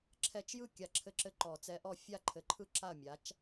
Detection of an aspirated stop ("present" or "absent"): present